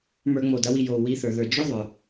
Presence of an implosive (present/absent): absent